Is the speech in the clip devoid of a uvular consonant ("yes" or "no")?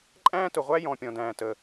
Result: no